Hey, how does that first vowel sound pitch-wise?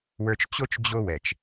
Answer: low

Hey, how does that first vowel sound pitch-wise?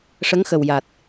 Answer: rising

